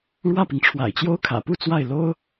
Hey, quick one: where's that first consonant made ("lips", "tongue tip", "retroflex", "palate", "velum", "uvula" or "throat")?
retroflex